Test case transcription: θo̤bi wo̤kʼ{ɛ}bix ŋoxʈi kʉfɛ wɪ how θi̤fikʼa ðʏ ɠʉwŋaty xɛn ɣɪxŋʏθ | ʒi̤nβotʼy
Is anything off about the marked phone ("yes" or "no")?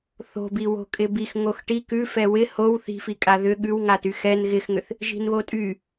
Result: yes